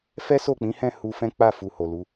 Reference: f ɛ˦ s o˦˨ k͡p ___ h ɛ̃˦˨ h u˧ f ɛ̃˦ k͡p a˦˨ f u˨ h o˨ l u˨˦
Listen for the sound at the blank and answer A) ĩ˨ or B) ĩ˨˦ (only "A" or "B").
B